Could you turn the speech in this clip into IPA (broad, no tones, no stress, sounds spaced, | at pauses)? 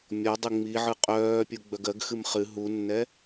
mʲ ɔ dˤ ɨ ŋ͡m i ʕ ɯ qʼ œː pʲ u ɡ͡b œ ɡ ɜ ɡ x ɨ m χ ɨ ɦ u nː ɛ